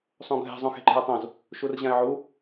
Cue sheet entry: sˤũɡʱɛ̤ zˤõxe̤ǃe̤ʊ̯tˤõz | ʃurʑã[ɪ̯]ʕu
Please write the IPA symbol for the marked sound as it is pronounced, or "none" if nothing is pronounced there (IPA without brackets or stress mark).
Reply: ɪ̯